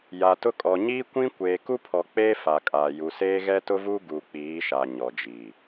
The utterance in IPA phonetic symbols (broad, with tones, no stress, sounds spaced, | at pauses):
j a˨ t ʊ˦ kʼ ɔ˨ ɲ iː˦ kʷ ĩ˦ kʷ eː˨ k u˦ pʰ ɔ˨ k͡p eː˦ f a˨ kʼ aː˨ j u˨ s eː˦ ɣ ɛ˦ t ʊ˦ v u˦ ɡ u˨ k͡p iː˨˦ ʃ a˨ ɲ ɔ˨ d͡ʒ iː˨